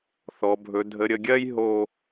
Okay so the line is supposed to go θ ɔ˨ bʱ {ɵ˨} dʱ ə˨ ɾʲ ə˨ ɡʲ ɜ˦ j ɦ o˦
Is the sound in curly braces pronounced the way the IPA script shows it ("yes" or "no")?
yes